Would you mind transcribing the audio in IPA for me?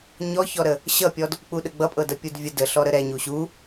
ɲ ɔ ç ɔ ɾ ə | ɕ ʌ pʲ ɔ d | k͡p u ɗ ə ɡ͡b ʌ pʼ ɤ d ʌ pʲ u d vʲ ə d ə ɬ ɔ ɾ ə ɾ ɛ ɲ u ɕ u

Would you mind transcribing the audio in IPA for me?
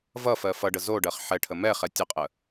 v ʌ f ɜ f ʌ ɖ ə z o ɖ ɜ χ ħ ɛ ʈʰ ə m ɛ χ ɛ tʲ ə qʼ ə

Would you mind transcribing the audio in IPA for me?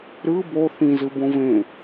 ɾ ɯ b o θ ĩ z ɯ b õ v ẽ

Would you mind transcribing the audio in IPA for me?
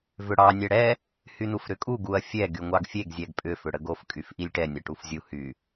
v ʏ ɽ ɑ nʲ ɛ ɽ ɛ | h y n u f ɾ ʏ kʼ u ɡ u ɐ̯ fʲ ɛ ɡ y ŋʷ ɑ ɡ fʲ e ɡ zʲ ɛ ɡ pʼ ʏ f ʏ ɽ ə ɡ o f kʼ y f ʔ i lʲ ʈ ɛ nʲ ɐ ʈ u f zʲ u h y

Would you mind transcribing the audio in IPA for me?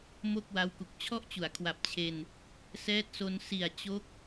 m o˥˩ k̚ w a˦˥ w k u˨˩ k̚ t͡ɕʰ ɔ˥˩ ʔ t͡ɕ u˩˦ a̯ kʰ w a˨˩ p̚ t͡ɕʰ e˧ n | s ɛː˦˥ t̚ s o˧ n s i˨˩ a̯ t͡ɕ o˦˥ k̚

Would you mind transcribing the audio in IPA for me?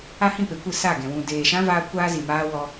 a˦ h ĩ˦˨ p e˨ kʷ ɨ˦˨ s a˦˨ ɡ ɛ̃˨ w ũ˨ d eː˨ ʃ ã˧ v aː˦ kʷ aː˦ z i˨ m aː˦ w ɔ˧

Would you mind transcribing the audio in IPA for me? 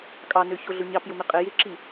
kʼ ɑ n ø ç o ɮ ʊ ɲ ɑ p j ʊ m ɪ qʼ ɪ j ɪ ǁ i

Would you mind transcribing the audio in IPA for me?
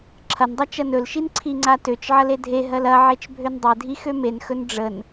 ǁʰ ɐ n dˤ ɐ t͡ʃ ɐ n ɵ l ʃ i n ǀʰ i ŋ͡ǀ a t ø t͡ʃ ʕ ɐ l e dʱ e ɦ ɜ l ɐ ʕ e t͡ʃ bʱ ø n dˤ e dʱ i x ø m e n x ɵ n ɖ͡ʐ ə n

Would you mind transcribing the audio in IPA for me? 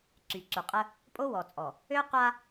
ǀ y˨ ǀ u˨ qʼ ə˦ | pʼ o˦ w ɔ˨ t͡sʼ ɔ˨ | ø˦ qʷ a˦

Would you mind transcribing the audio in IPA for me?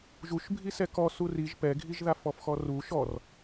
ʒ u ʃ bʱ i s ɛ k ɔ s u r i ʒ p ɛ ɡʱ i ʒ ð a f ɔ f x ɔ r u ʃ ɔ r

